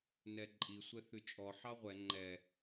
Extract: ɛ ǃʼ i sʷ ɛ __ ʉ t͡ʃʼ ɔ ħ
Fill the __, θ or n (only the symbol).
θ